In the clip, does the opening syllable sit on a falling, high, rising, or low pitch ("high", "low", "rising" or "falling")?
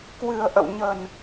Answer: low